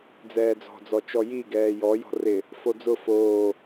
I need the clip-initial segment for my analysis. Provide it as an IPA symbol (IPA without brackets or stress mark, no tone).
d͡z